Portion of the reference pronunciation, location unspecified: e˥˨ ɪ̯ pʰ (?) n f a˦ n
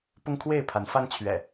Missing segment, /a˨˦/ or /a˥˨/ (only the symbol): a˨˦